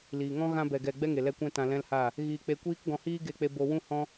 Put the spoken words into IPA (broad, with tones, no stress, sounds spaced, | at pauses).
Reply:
l iː˨ ŋ ɔ̃˦ ɣ ã˧ b ɛ˨ ɡ ɛ˨ ɡ͡b ɛ˦ ŋ e˨ l ɛ˧ kʷ ɛ̃˦ t ã˧ l ɛ̃˦ l h aː˦˨ | ɣ iː˧ k͡p e˧ kʷ iː˦ k ɡ ɔ̃˧ h iː˦ ɡ e˧ k͡p e˧ b o˧ w ũ˦ h ɔ̃˦